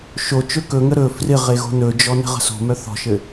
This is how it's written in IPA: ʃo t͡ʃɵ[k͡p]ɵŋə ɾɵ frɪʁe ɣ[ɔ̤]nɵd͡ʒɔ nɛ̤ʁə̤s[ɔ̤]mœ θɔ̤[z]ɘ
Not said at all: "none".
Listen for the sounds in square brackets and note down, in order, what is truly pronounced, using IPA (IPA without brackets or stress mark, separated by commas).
k, o̤, o̤, ʃ